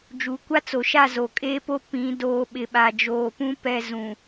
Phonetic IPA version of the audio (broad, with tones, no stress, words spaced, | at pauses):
d͡ʒuː˨kʷa˦t͡so˨ʃa˦˨ zo˨kʼeː˦po˦ pĩ˨˦doː˨˦ɓɪ˨ɓa˨ d͡ʒoː˨pũ˦ pɛ˦˨zũ˨